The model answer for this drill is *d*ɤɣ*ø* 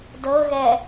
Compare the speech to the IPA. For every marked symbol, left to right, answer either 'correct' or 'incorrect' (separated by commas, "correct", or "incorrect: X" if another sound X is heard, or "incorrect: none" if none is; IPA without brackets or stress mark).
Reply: correct, incorrect: ɛ